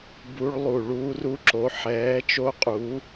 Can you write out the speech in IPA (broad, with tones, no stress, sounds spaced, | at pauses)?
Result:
b u˦˥ ɭ lˠ u˧˩ ɭ uː˦˥ r u˦˥ ǁ o˨˥ ħ ɛː˨˥ t͡ʃ o˦˥ qʼ u˨˥